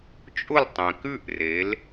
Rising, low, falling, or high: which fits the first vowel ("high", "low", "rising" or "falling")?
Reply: falling